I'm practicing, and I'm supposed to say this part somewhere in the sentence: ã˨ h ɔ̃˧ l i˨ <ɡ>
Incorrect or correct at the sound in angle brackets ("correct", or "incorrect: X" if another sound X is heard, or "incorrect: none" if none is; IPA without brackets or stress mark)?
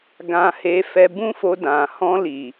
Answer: incorrect: none